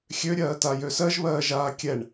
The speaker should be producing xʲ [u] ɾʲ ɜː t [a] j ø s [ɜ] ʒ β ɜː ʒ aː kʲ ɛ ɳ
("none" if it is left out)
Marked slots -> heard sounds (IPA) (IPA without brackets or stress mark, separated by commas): ø, a, ɜ